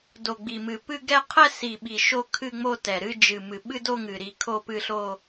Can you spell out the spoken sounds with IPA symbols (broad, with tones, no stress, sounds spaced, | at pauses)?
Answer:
d o˨˩ ɡ͡b i˨˩ m ɨ˨˩ p ɨ˥˧ ɡ ɛ˥˧ qʰ ɛ˥˧ s i˨˩ ɓ i˨˩ ʃ o˥˧ kʰ ɨ˥˧ ŋ͡m o˥˧ t ɛ˨˩ ɾ ɨ˥˧ d͡ʒ ɨ˨˩ m ɨ˨˩ ɓ ɨ˥˧ d o˥˧ ŋ ɨ˨˩ ɾ i˥˧ kʰ o˥˧ p ɨ˥˧ ɬ o˥˧